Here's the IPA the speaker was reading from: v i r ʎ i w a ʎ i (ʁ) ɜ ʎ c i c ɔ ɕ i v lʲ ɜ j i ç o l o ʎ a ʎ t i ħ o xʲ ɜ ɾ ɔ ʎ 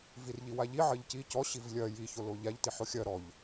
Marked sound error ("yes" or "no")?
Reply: yes